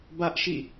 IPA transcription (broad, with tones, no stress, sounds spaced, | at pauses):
b ä˦ ʔ ʃ ḭ˦˨